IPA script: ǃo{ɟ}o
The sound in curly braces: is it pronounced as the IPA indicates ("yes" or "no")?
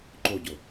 yes